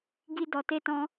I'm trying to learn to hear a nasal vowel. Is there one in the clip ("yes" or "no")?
yes